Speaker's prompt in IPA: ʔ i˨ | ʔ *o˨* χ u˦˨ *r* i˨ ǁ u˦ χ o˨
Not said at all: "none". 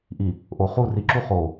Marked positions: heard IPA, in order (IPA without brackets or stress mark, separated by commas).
o˨, r